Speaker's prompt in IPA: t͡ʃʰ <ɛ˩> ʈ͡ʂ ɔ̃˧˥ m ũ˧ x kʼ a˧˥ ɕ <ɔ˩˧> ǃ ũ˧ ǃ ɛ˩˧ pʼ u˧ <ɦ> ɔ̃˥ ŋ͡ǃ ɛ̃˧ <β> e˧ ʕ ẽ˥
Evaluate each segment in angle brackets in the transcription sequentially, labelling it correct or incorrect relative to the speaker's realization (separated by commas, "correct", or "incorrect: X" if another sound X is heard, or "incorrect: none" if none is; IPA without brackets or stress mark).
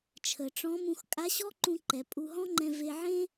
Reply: incorrect: ə˩, incorrect: ɔ˥, correct, incorrect: v